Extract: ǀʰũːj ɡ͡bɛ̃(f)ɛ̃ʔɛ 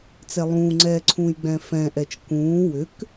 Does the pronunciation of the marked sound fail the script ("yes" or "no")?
no